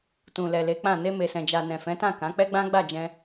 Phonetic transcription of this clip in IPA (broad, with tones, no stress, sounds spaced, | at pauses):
t ũ˨ l ɛ˨ l e˨˦ k͡p ã˦˨ n e˧ m e˨ s ɛ̃˨ d͡ʒ a˨ n ɛ̃˨ f ɛ̃˨˦ t ã˦˨ k ã˨˦ k͡p ɛ˦ ɡ͡b ã˦ ɡ͡b a˦˨ d͡ʒ ɛ̃˧